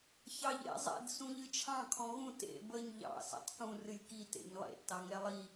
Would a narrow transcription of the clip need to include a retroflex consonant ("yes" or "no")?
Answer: no